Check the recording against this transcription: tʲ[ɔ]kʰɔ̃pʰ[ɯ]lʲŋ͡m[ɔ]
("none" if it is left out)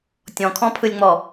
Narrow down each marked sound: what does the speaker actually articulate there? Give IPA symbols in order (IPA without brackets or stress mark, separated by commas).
ɔ̃, ɯ, ɔ